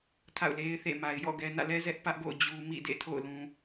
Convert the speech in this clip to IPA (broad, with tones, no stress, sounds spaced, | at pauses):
tʰ a̰˦˨ ʊ̯ l e˦ ɪ̯ θ ḛ˦˨ m a˨ ɪ̯ j ɔ̰˦˨ ɡ ɛ˨ n ä̰˦˨ l ɛ˦ z ɛ˦ ʔ p ä˦ ʔ ɡ o̰˦˨ ʊ̯ d͡ʑ u˨ m ḭ˦˨ d ḛ˦˨ tʰ o̰˦˨ ʊ̯ l ũ˨